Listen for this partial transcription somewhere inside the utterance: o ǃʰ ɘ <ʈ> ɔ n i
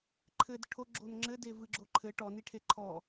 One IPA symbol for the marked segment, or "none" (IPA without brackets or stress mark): ʈ